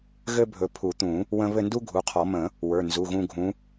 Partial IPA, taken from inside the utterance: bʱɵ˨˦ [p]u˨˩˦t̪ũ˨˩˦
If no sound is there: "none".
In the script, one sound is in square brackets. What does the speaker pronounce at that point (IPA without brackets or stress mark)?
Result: pʰ